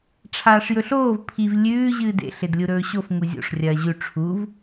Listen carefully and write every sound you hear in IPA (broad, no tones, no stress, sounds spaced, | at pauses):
ʈ͡ʂʰ aː ʂ j ɵ ɬ oː v pʰ i v lʲ ʉː ʑ ɨː d ḛ ɬ e d lʲ u ɾ ɵː ɕ o f ŋ u zʲ o̰ ʂ rʲ ɐː ʑ ʉ ʈ͡ʂʰ u v